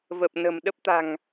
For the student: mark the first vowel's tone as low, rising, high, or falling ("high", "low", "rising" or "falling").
low